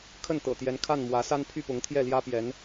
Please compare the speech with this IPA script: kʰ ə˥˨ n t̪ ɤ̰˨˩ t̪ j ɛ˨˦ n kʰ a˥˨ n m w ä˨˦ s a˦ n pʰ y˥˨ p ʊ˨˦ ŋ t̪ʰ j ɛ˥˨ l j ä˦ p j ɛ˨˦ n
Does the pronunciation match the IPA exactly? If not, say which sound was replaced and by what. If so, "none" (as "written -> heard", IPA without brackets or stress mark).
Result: none